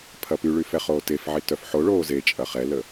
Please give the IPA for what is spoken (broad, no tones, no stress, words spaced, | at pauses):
pʰɐpyɭy fɛχoːtefʕi tœfħoɭoː zet͡ʃʼɐ χɛlə